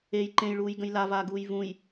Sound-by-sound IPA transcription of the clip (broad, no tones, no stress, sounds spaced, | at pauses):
e j ǃ ẽ j ɭ uː j ɡ ə̃ j l a v aː ɡ uː j v ũ j